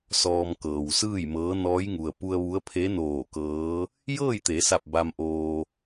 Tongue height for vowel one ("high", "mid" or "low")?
mid